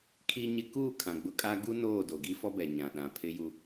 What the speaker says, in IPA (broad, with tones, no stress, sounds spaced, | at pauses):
kʰ i˦ ɲ ɪ˦ k uː˦˨ kʰ ã˨ ɡ͡b ʊ˦ kʼ a˦ ɡ u˦ n oː˦˨ d o˨ ɡ i˦ f ɔ˦ b ɛ˨ ɲ ã˨ ɗ ã˨ pʰ ɪ˦ j u˦